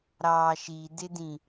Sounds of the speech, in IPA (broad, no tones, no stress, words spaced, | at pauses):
ɾɑːʃidɪdĩ